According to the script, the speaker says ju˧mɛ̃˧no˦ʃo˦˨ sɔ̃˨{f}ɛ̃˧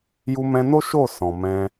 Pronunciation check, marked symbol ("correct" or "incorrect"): incorrect